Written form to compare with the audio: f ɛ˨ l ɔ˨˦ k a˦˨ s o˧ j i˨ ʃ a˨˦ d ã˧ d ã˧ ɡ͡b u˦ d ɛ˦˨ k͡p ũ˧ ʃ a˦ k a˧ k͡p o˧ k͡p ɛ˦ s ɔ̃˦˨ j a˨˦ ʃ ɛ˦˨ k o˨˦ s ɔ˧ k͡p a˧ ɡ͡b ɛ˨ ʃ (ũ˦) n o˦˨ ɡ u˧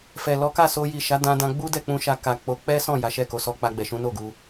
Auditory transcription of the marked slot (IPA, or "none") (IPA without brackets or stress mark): ũ˨˦